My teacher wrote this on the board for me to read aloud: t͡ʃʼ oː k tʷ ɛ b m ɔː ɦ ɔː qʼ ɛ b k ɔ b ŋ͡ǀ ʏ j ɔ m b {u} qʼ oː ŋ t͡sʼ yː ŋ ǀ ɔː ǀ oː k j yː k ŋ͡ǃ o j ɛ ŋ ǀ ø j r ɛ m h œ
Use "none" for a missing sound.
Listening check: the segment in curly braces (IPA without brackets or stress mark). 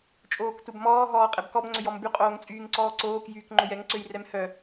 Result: y